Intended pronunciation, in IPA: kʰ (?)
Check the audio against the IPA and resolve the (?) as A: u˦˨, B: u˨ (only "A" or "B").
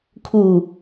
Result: B